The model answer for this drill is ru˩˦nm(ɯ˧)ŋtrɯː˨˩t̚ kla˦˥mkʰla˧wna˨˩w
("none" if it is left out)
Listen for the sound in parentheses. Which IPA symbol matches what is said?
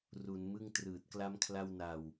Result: ɯ˥˩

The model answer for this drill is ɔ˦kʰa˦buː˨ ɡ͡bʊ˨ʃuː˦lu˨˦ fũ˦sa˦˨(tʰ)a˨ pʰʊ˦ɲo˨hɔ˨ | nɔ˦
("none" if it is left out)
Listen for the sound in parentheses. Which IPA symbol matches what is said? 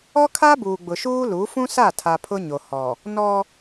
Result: tʰ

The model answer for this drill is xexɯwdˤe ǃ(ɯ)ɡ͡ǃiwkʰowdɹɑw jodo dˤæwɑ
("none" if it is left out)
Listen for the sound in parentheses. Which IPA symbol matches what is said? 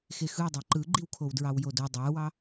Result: ɯ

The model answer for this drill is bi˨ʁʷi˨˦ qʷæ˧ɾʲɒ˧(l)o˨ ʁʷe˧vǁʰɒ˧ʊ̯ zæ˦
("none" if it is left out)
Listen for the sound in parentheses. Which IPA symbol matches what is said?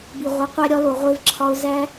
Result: l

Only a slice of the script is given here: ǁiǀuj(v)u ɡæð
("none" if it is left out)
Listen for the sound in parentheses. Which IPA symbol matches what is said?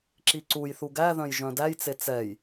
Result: θ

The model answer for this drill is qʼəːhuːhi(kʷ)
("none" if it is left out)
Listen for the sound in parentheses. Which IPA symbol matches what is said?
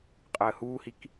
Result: k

